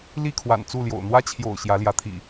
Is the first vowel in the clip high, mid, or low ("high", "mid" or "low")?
high